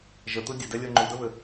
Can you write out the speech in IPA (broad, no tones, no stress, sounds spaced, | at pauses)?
ʒ ə t̪ ɯ dʲ ɘ d ɛ lʲ ɤ ŋ͡ǃ u d ə β ɘ